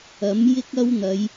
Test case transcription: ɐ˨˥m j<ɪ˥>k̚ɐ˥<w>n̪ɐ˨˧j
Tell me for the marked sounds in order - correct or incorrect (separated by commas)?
correct, correct